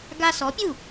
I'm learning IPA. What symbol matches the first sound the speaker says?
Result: ɡ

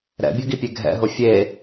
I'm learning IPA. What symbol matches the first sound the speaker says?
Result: ɾ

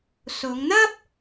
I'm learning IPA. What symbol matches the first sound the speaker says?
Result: s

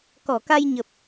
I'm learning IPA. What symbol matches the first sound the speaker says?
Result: k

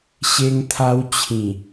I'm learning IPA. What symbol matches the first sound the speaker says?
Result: ɕ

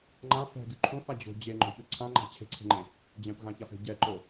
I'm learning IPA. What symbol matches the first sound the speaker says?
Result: ŋ͡ǃ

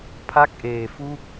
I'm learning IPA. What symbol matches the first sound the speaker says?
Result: pʰ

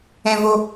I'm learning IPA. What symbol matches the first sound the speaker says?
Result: ɛ̃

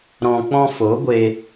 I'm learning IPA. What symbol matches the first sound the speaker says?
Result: ɾ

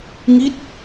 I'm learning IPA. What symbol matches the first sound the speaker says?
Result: ŋ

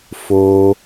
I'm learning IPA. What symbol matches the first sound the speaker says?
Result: f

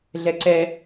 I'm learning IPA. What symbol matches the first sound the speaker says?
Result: ɮ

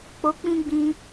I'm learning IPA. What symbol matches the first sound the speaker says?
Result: k͡p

